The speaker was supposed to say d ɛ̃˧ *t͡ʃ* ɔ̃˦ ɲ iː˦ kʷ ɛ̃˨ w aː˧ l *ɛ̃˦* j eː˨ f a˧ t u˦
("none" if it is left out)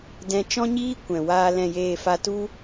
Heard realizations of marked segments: t͡ʃ, ɛ̃˨

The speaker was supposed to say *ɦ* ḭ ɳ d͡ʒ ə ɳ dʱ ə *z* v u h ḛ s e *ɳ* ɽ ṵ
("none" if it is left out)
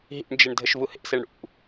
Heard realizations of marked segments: ɦ, ʃ, ɳ

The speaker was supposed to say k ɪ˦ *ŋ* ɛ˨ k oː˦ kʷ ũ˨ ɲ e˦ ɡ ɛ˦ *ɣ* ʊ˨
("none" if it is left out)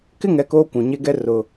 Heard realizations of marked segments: ŋ, r

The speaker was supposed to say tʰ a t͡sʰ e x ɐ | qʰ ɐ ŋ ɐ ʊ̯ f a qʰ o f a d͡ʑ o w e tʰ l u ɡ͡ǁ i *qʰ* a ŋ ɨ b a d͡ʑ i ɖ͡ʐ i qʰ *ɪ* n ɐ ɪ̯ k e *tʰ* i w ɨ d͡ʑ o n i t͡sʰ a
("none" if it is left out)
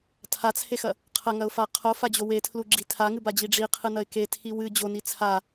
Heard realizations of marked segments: tʰ, ɨ, tʰ

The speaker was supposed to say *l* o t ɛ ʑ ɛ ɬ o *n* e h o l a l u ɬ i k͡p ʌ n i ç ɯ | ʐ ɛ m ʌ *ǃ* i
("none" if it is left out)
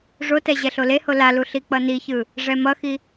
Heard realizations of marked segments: ʐ, l, x

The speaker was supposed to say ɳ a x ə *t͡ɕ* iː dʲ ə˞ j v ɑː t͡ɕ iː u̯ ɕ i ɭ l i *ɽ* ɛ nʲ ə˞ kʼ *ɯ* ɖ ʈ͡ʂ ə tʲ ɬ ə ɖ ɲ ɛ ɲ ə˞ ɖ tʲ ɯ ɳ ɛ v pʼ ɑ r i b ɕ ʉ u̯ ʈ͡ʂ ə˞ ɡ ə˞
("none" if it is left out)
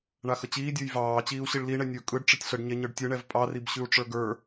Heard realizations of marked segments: t͡ɕ, ɳ, ɯ

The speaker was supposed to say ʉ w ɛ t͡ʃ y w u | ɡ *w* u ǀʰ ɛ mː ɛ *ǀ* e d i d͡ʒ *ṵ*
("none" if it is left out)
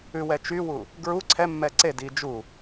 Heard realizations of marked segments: ɹ, ǀ, u

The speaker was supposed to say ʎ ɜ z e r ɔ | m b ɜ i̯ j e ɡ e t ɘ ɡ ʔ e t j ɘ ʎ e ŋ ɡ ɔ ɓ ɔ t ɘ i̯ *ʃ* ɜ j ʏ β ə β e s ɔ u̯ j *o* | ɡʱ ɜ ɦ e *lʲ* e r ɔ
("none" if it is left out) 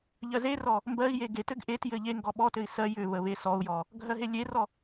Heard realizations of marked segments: s, ɔ, lʲ

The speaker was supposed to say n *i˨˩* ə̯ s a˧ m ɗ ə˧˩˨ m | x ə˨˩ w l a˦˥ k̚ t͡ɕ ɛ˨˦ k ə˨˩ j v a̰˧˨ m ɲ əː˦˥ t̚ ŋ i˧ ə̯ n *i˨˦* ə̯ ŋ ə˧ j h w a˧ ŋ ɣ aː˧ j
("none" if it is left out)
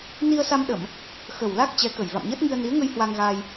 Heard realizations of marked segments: i˧, i˨˦

